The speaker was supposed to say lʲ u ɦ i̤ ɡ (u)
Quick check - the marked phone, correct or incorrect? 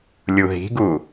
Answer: correct